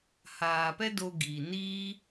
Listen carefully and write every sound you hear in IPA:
h aː˨ p ɛ˦ d o˧ ɡ iː˨ n iː˦

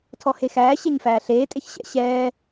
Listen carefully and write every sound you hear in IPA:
tʰ ɔ h e x æː ɕ e ɲ f æː ɬ eː tʼ e ç ɕ ɛ̰ ɕ ɛː

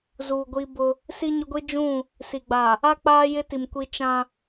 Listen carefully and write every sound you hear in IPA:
z uː˨ ɡʷ i˦ b ʊ˦ | s i˦ ɲ ʊ˦ ɡʷ i˦ d͡ʒ ũ˦˨ | s i˨ ɡ͡b a˨ | a˦ k͡p aː˦ j ɪ˦ t i˨ m kʷ i˦ t͡ʃ ã˦

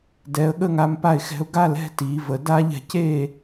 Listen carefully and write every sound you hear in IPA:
d ɛ˩˧ ə̯ ɠ ə˥˨ ŋ a˦ m p a˥˨ ɪ̯ x ɛ̤˦ ʊ̯ ɡ a˥˨ l ɛ̤˥˨ t i˩˧ v ə˩˧ d a˦ ʎ ɛ̤˩˧ c e˥˨

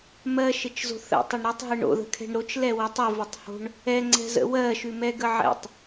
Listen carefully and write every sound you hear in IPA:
m ɜ ʃ ɘ t͡ʃ z o̤ θ ə̰ tˤ ɘ ɳ ɾ ʉ tˤ ɦ ɜ ɳ o̰ ð ə̤ kʰ ɛ̤ ɳ ɾ o t͡ʃ l ɛ w ə tˤ ɘ v ə tˤ h o̤ ɳ | ɛ ŋ͡ǀ ɛ̤ z ə̰ w ɜ ʃ ʉ m ɛ ɡ ə ʕ ɛ̰ tˤ

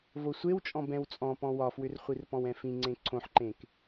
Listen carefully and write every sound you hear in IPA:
v o sʷ e w t͡ʃʼ ɔ̃ b ɛ̃ w t͡sʼ ɔ̃ p ɔ̃ w ɒ f w ʏ r χʷ i r p ɔ̃ w ɛ̃ f ĩ ŋ͡ǀ ẽ ǀʰ õ ħ ǃ ẽ k

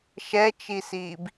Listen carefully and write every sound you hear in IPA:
ʃ ɛ t͡ʃ i s iː b

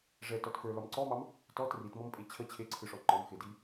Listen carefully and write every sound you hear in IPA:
ʐ ɛ t ɔ t f ə˞ l ɒ m ǀ ɔ m ɑ m | t ɔ t r i t m ɔ m pʼ e t͡ɕʰ ə t͡ɕʰ e ǀʰ ɯ ʂ ɔ ŋ͡ǃ ɒ m x e d i

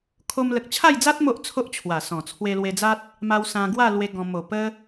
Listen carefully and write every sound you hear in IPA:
kʰ o˧ m l ə˨ k̚ t͡ɕʰ a˥˧ j d͡z a˦ t̚ m o˦ ʔ t͡sʰ o˦ ʔ t͡ɕʰ w a˨˩ s ɔ̃˨˩ t͡sʰ w e˧ l w e˧ d͡z a˦ t̚ | m a˧ w s ã˧ ɡ w a˥˧ l w e˦ ɡ ɔ̃˧ m o˨˩ p ə˦

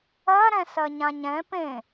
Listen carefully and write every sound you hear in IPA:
ɜ ɾ ɛ̃ s ɜ ɲ ã ɲ ɛ̃ p ẽ

